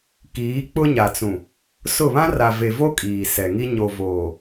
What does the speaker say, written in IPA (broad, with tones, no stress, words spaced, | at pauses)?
kiː˨˦k͡pʊ˦ɲa˨t͡sũ˨ | sʊ˦˨ βã˦ra˨ve˨vo˦ kʼiː˨sɛ˨ŋi˦ ɲo˨ voː˨